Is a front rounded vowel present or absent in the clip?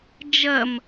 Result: absent